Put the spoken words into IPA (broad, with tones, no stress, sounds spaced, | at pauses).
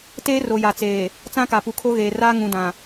t eː˦ r o˨ j a˨ t͡s eː˨ | t͡s ã˦ k a˨ p u˨ kʰ o˦ ɣ eː˨ r aː˦ ŋ ũ˨ d ã˨